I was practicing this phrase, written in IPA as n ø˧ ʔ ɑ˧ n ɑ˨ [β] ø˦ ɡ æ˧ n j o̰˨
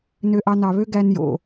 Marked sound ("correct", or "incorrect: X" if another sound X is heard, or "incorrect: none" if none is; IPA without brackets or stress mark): correct